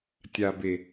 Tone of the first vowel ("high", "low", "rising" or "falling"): low